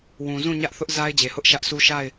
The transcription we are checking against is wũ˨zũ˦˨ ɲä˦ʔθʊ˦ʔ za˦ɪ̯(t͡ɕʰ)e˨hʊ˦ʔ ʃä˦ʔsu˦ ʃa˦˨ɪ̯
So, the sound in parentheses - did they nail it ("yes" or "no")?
no